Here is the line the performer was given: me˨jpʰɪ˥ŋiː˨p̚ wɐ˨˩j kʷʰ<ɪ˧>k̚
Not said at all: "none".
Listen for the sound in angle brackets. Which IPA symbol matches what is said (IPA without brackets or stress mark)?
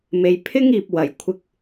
ɪ˧